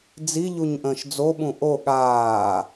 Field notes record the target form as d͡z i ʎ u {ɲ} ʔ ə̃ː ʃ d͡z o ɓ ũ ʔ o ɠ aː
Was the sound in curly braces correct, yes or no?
yes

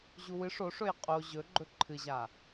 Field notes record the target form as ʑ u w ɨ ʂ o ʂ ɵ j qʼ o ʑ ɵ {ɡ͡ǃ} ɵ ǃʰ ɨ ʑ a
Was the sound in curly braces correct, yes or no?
yes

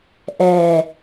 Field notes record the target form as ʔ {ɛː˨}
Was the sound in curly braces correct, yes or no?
yes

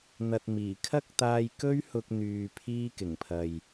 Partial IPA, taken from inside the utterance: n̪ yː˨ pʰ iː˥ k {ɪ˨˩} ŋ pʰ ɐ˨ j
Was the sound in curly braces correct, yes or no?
yes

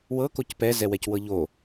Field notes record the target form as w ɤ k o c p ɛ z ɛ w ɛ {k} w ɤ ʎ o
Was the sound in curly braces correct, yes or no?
no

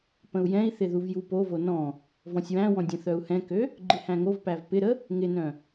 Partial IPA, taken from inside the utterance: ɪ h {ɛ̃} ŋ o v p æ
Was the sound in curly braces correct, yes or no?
no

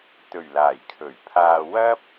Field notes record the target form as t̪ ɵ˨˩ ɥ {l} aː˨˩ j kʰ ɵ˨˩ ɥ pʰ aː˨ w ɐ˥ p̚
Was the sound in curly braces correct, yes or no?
yes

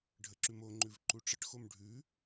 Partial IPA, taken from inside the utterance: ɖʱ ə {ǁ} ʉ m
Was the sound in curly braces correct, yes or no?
yes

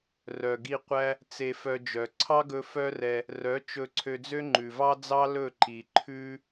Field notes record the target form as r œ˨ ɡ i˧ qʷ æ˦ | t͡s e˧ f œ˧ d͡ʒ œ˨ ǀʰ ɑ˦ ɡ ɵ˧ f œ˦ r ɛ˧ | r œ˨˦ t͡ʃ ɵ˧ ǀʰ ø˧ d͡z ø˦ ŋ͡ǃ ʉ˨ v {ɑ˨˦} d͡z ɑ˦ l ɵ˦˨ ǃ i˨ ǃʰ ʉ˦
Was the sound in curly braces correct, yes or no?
no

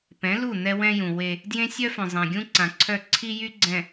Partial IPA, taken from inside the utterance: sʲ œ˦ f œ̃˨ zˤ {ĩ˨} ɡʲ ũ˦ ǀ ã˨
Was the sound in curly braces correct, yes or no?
no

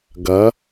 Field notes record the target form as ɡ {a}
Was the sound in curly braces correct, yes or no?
no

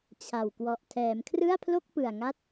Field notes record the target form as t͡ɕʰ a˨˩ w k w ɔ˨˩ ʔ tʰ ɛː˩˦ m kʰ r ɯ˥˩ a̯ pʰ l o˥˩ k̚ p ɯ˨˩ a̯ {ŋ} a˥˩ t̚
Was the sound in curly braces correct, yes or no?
yes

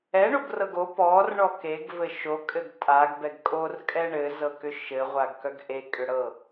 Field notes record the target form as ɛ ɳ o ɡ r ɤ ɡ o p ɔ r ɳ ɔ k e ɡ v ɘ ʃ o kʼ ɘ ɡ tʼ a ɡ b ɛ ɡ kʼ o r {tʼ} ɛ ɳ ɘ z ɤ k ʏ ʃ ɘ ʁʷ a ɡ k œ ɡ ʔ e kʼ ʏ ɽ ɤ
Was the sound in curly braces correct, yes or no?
no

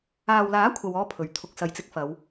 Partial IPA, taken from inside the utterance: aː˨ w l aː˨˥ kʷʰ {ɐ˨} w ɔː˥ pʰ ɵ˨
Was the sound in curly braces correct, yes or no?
no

